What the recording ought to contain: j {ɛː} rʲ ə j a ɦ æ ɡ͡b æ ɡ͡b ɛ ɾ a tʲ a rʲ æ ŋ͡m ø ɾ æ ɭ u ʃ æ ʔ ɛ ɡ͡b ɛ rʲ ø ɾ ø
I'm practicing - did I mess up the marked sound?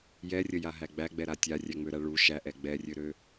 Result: yes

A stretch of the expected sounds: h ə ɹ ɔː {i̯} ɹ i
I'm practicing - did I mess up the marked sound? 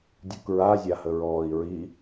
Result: no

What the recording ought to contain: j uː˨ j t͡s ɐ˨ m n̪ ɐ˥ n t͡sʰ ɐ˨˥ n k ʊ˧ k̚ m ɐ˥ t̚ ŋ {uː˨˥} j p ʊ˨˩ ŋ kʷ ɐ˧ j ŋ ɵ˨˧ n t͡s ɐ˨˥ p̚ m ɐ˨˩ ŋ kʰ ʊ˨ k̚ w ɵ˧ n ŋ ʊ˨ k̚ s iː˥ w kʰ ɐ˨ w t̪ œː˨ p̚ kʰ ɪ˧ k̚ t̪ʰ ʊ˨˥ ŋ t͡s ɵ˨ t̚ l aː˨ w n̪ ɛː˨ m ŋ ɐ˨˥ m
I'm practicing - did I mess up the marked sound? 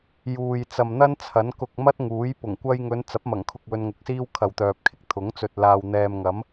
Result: no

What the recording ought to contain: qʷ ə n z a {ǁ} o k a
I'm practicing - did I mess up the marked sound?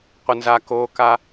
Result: yes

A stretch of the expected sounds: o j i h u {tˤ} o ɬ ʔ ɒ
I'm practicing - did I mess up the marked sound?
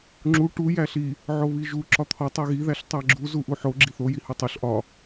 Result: no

